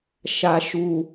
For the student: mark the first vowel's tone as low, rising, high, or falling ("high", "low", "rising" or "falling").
low